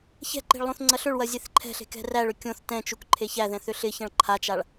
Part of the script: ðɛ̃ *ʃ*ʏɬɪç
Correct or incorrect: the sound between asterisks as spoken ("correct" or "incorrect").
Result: incorrect